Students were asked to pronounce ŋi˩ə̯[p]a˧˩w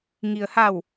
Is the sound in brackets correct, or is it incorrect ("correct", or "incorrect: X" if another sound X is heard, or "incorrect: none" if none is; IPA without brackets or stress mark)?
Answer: incorrect: h